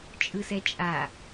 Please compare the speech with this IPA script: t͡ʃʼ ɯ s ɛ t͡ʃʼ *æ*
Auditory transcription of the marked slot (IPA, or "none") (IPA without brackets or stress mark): a